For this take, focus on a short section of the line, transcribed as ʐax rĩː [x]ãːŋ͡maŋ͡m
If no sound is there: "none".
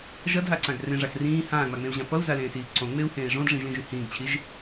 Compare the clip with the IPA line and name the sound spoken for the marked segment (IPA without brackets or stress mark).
h